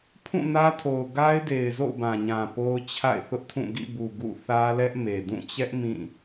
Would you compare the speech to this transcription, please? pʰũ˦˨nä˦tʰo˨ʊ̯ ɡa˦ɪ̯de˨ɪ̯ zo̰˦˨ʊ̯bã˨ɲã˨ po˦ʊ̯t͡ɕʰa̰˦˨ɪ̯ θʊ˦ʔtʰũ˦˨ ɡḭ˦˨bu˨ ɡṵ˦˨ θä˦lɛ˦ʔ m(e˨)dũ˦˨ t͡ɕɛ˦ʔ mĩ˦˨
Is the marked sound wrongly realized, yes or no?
no